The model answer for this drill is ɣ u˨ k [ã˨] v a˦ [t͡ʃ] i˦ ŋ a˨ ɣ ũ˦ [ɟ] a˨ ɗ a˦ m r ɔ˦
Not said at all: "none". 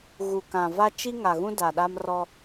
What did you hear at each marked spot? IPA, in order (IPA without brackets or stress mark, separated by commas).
ã˨, t͡ʃ, d